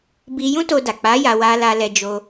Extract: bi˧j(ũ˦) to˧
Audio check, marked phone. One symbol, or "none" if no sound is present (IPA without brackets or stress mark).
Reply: ũ˦